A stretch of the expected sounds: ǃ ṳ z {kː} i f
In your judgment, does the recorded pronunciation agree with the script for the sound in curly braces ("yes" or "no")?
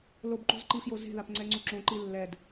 no